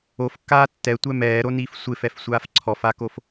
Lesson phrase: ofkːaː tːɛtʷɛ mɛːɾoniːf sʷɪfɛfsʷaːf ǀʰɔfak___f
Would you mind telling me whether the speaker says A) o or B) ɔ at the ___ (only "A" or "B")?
A